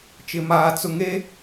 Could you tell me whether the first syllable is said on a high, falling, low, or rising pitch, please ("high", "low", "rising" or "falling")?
low